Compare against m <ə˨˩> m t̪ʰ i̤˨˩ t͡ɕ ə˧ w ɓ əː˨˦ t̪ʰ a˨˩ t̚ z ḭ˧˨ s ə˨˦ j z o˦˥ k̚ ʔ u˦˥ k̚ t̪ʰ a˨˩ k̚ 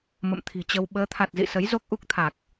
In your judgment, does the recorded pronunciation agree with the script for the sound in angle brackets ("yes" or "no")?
no